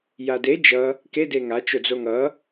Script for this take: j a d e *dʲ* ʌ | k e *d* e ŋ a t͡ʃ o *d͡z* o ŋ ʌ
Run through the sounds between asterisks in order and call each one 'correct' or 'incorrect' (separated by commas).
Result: incorrect, correct, correct